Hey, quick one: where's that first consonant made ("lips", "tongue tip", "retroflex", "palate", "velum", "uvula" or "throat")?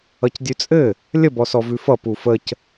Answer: palate